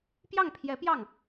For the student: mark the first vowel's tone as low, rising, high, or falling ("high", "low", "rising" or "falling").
falling